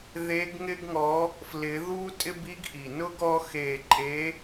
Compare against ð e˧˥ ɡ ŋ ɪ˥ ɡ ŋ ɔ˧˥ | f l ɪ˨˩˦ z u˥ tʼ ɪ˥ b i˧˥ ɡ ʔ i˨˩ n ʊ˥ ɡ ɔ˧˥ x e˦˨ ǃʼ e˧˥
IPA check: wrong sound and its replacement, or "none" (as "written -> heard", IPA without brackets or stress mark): z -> ð